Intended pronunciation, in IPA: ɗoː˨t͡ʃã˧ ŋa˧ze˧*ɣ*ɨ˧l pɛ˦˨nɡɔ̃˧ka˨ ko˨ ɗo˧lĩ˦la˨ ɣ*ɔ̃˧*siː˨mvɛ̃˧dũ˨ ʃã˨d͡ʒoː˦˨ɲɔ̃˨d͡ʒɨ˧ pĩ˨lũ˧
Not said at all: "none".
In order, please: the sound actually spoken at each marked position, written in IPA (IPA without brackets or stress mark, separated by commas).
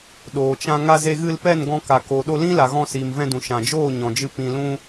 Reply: ɣ, ɔ̃˧